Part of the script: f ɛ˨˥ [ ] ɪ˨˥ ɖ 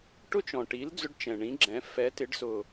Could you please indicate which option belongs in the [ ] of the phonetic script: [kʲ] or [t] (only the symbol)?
t